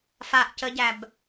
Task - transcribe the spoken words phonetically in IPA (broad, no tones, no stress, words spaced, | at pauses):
faʔ cəɟæb